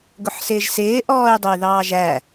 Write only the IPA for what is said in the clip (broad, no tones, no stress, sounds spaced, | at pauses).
ɡ ʊ ħ s ɪː ʒ s ɪː ʔ ɔː y̯ dˤ ʊ y̯ ð ɑː ʒ æ